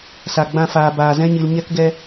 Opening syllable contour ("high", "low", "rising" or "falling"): low